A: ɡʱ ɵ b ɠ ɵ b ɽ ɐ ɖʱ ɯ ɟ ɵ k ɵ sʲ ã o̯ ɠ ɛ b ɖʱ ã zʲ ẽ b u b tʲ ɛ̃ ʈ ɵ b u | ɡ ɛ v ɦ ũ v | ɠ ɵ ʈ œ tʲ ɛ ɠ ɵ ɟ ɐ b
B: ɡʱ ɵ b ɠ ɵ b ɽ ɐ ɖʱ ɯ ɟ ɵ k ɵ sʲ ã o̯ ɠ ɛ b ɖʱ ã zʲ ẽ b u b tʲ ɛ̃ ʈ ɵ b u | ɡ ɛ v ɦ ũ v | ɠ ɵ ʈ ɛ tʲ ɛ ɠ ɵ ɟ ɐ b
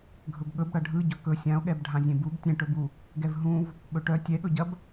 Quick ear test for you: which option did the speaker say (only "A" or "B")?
A